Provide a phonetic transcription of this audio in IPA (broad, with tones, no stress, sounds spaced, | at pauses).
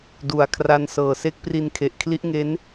d u˩˦ a̯ kʰ r a˦˥ n s ɤː˨˩ s e˦˥ k̚ p r i˧ n kʰ e˨˩ ʔ kʰ l i˦˥ ʔ ŋ e˦˥ n